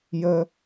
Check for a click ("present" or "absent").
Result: absent